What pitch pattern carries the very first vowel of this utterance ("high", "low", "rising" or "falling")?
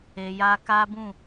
low